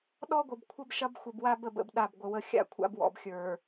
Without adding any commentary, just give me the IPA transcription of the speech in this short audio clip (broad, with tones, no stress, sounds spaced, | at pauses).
ɗ ɔ˦ ɡʷ ə˨ b kʷʰ ə˦ b ʃ ɐ˦ b xʷ ə˨ b w a˦ b ə˦ b ə̰˦ b ɗ a˦˨ b ɡʷ ə˨ w ə˦ xʲ a̰˦˨ kʷʰ a̰˦ b w ɔ̰˨ b xʲ ə˞˨